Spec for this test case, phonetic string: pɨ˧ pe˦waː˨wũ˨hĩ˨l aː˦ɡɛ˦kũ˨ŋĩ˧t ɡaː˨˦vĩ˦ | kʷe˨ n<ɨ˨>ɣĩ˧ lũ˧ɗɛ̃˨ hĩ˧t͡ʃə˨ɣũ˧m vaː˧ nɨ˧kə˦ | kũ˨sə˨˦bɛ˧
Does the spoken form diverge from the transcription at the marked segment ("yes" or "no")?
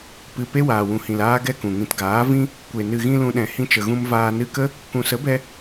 no